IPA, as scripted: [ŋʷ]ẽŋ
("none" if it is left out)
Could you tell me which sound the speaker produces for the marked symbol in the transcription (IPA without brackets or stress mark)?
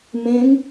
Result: m